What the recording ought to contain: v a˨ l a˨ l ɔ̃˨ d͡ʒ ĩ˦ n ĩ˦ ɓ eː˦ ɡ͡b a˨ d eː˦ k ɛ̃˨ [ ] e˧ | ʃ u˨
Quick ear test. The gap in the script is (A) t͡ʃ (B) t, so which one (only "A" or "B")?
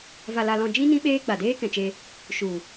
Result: A